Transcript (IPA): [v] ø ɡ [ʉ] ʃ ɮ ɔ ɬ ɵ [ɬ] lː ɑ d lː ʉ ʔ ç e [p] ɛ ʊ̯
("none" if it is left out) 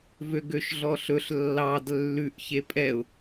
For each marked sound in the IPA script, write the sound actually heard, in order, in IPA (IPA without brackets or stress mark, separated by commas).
v, ø, ɬ, pʼ